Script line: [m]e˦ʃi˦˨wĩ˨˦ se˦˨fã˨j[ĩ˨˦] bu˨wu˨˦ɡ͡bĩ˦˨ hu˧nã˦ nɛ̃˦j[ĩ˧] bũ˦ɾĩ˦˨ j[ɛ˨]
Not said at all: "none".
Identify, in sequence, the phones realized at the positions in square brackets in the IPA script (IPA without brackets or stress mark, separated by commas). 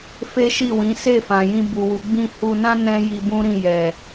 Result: f, ĩ˧, i˧, ɛ˨